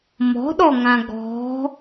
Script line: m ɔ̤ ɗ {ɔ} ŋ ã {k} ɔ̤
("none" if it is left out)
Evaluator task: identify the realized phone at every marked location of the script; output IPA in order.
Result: ɔ, ɡ

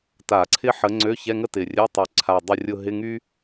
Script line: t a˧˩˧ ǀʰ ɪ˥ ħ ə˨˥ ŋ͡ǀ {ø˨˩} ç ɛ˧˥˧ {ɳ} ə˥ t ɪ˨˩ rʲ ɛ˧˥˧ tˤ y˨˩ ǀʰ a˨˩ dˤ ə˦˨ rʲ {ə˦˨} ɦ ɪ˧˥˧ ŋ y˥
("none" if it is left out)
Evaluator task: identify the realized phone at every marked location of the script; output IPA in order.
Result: ø˧˥˧, ŋ, ʊ˦˨

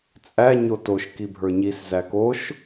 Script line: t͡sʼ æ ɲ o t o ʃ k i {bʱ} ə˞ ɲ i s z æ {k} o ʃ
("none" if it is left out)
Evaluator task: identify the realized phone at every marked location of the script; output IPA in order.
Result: bʱ, k

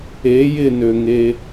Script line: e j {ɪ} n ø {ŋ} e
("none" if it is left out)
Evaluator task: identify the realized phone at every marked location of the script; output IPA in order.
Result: ɪ, ŋ

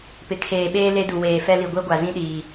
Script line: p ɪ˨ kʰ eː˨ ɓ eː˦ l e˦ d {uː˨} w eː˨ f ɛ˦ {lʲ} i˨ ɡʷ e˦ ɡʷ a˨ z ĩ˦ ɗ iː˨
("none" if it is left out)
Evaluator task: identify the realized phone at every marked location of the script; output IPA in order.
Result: u˨, l

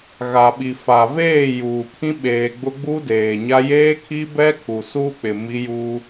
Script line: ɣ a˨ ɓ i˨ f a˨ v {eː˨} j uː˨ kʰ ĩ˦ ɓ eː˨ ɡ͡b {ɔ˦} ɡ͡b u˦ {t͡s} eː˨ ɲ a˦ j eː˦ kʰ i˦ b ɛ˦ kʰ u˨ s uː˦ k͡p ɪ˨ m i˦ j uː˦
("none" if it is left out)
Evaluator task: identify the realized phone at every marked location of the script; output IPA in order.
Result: eː˦˨, ʊ˦, d

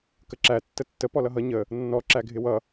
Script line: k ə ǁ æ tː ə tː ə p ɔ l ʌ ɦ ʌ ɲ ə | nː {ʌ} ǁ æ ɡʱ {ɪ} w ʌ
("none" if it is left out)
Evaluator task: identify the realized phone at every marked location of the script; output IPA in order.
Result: ɔ, ɪ

